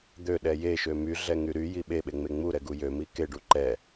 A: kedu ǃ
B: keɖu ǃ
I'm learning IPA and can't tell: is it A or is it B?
B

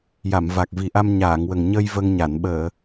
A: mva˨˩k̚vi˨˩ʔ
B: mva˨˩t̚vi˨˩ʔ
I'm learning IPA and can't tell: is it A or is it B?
A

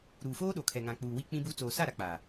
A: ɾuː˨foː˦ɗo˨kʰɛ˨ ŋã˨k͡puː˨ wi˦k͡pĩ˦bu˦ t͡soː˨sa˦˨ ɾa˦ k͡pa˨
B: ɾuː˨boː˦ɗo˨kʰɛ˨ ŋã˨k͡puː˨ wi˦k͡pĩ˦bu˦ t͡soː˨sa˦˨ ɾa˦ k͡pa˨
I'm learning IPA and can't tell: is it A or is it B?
A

